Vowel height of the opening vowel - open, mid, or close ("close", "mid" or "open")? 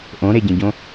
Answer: mid